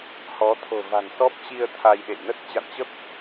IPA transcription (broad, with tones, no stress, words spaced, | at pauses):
hɔ˨˦ t̪ʰo̤˨˩va̤˨˩nsɔ˦˥p̚t͡ɕi˧ə̯ t̪ʰa˧jɗḛ˧˨j nə˦˥t̚t͡ɕa̰˧˨nt͡ɕə˦˥p̚